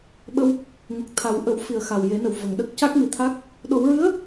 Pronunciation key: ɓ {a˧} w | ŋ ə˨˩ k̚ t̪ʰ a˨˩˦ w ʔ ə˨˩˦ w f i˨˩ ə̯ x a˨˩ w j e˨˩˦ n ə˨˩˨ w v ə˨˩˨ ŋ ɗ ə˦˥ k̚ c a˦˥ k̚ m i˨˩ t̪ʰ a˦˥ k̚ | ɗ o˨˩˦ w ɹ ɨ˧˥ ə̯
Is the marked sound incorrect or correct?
incorrect